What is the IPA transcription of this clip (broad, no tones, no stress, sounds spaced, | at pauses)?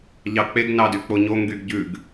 ʎ ɑ k͡p e ɡ n ɑ d y k͡p o ɲ o ŋ ɡ y ɡ ɟ ʉ ɡ